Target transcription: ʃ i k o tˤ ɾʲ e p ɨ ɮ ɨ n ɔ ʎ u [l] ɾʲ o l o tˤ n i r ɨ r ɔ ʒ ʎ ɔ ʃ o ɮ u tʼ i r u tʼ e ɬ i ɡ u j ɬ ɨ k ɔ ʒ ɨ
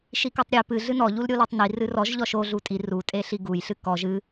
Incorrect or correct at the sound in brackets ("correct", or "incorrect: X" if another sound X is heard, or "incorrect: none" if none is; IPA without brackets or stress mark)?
correct